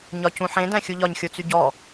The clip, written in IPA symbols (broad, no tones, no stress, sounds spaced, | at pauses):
ɲ ɒ c ũ ħ ẽ d æ̃ xʲ u ʎ ɒ ɲ xʲ o t͡s y ɟ ɔ